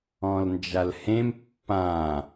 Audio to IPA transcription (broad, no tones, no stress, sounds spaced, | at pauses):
ɔ̃ l n d͡ʒ a l h ẽ m pː ã